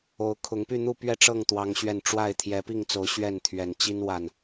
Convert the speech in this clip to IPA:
o˨˦ ʊ̯ kʰ ʊ˨˦ ŋ p y˥˨ n̪ u˥˨ p ɥ ɛ˥˨ ʈ͡ʂ ɤ˥˨ ŋ t̪ w ɑ˦ ŋ ɕ ɥ ɛ˥˨ n ʈ͡ʂ w a˥˨ ɪ̯ t̪ʰ j ɛ˨˦ p i˥˨ ŋ t͡s o˨˦ ʊ̯ ɕ ɥ ɛ˥˨ n t̪ʰ ɥ ɛ˨˩ n t͡ɕ i˦ n w a˨˩ n

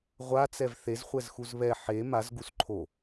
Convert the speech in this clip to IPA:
ʁʷ a t͡s ɛ v θ e z χʷ ɛ z x u z β ɛ ħ e m a z ɡ u s ǃʰ o

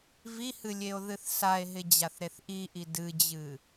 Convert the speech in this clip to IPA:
v i h ɨ lʲ e o̯ ð ɨ θ s a e̯ ɦ ɪ d͡ʑ a θ ɾ e θ ʔ i ʔ i d ɨ d͡ʑ ɨ

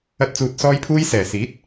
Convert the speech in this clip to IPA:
ɐ˧ t̚ t͡s uː˨ t̚ s ɔː˧ j pʰ uː˧ j s ɛː˨˩ s iː˨˥ t̚

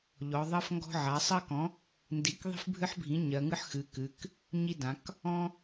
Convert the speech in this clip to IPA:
ʎ ɔ˩˧ ðˤ ɜ˦ f ŋ ɡ ɔ̤˦ ʕ a˩˥ sˤ ɜ˦ k ɔ̃˩˥ | n d i˩˥ k ðˤ i̤˦ f bʱ ɨ˦ ħ bʱ ĩ˩˥ ɲ ɜ˩˧ ŋ ɨ˦ ħ x ɨ˩˧ k ɨ˩˧ k | ɲ i˦ d ã˩˧ k | ɔ̃˦

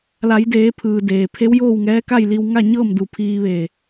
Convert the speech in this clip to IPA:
l a˩˧ j d eː˩˧ pʰ ɯː˩ d eː˩ pʰ e˧˥ w j oː˥˨ w ŋ ɛː˧˥ k a˥˨ j l i˧ w ŋ a˥˨ ɲ ɤː˥˨ m d u˧˩ pʰ iː˧ ʋ eː˧˩

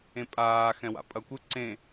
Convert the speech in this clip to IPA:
ẽ pʼ aː x ɛ̃ w a̰ pʼ ɐ kʷ ɪ ǀ ẽ

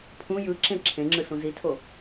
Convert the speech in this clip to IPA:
pʰ ũ j ɯ ǁ ẽ ǁʰ ẽ ŋ͡ǁ ɯ s ũ z i tʰ o

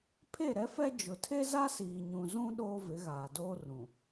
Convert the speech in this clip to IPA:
pʰ e˦˨ ɾ ɛ˦ f ɛ˦ d͡ʒ ʊ˨ tʰ e˦ z a˦ s iː˨ ɲ ũ˨ z ũ˦ ɗ oː˦ v ɪ˨˦ ɣ aː˨ d oː˦ r ũ˨

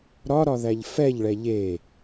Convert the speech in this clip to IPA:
ɾ ɒ ɾ ɒ ð æ ʎ f ɛ ʎ ɭ ɛ ʎ e

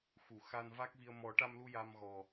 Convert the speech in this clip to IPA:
x u˨˩˨ x a˧ n v a˦˥ k̚ v i˧ ə̯ m ɔ˨˩˦ ʈ a˧ m l u˧ j a˧ m ɣ ɔ˨˩

